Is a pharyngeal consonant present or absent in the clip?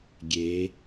absent